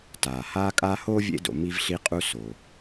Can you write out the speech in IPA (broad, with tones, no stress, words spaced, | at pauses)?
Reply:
taː˩haː˦ kʼaː˦hoː˥vʲḛ˦do̰˨ mi˦vɬi˦qʼu˦ so˩